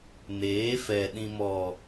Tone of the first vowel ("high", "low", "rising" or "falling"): rising